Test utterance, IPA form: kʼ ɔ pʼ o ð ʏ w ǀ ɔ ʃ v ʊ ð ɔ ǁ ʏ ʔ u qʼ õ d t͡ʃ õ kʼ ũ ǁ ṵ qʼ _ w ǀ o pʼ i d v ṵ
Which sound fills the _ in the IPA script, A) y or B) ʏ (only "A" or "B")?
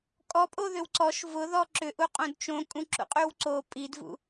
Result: A